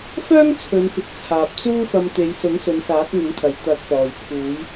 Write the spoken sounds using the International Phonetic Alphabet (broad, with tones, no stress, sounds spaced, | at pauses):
f œː˥ ŋ t͡sʰ ɵ˨˧ n f ɪ˨ k̚ t͡sʰ aː˨ p̚ t͡s uː˥ f ɐ˧ m t̪ e˨˧ j s ʊ˨˥ ŋ s ɵ˨˧ n s aː˨˥ k̚ ŋ ʊ˨˥ ŋ kʰ ɐ˨ j t̪ ɐ˨˥ k̚ p ɔː˨ j pʰ uː˨˧ j